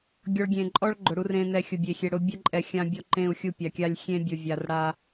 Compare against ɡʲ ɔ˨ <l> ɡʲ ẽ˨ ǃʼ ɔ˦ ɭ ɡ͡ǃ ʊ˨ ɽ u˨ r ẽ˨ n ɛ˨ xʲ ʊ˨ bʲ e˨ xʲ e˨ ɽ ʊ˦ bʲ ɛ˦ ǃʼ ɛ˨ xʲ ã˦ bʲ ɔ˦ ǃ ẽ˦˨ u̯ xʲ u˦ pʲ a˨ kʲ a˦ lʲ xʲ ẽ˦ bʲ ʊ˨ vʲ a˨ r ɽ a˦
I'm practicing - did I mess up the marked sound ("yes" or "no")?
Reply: yes